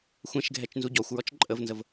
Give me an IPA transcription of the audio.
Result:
xʷɛ̃ʃɡʱɛt͡ʃ nzuɟɔxʷɹɔt͡ʃ ǃʼəvnzəv

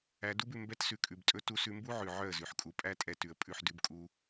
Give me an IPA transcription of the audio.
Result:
æ˧du˦bʉ˨ mbɛ˧tsʉ˨kʼʉ˨btʼɵ˧ tu˧sʉ˧mbu˦ʕʉ˨ ʕœ˦˨ə̯zʉ˨ħkʼu˧ pʼæ˦tʼɛ˧ tʉ˨ə̯pʼʉ˦˨ħ dʉ˧bkʼu˧

